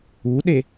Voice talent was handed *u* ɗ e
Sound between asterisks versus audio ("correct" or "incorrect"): correct